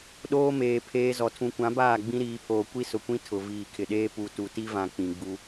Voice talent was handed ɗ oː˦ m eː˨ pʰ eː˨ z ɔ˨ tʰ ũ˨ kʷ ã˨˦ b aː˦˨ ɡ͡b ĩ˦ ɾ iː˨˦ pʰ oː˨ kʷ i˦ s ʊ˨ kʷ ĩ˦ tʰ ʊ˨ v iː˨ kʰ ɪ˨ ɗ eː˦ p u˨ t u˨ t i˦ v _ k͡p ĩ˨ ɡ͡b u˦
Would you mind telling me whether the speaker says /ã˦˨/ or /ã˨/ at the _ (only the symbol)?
ã˨